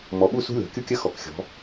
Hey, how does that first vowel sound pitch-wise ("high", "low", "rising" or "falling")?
rising